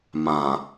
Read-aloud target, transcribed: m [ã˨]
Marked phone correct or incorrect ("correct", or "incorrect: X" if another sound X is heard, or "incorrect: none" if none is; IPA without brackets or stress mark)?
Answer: correct